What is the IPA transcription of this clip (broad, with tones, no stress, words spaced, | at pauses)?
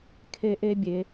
kʰe˥ʔe˥bʲe˨˦